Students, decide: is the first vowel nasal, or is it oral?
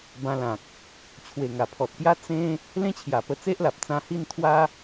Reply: nasal